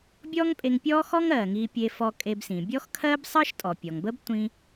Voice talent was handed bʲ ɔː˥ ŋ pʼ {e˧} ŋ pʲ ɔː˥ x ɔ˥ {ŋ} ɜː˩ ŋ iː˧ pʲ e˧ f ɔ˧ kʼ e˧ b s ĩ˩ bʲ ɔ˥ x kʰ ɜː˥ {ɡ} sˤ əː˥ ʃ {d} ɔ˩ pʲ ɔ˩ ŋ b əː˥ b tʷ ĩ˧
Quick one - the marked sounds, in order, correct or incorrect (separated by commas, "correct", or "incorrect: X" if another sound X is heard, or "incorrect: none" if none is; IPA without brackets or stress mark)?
correct, correct, incorrect: b, incorrect: tʼ